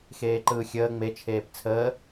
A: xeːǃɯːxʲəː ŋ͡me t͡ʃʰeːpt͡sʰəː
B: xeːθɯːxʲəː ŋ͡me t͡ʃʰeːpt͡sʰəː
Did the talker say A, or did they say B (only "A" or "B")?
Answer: A